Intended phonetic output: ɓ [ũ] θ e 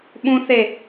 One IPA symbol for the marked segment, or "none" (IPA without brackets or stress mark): ũ